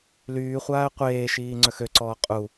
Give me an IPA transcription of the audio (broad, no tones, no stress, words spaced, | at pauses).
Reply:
lyːχʷaːə̯ qʷeːʃiː ŋ͡ǀœxøǀɔː qʼu